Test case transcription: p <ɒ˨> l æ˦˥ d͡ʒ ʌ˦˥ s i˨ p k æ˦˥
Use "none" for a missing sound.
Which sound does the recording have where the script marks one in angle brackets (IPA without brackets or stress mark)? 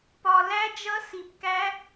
ɒ˨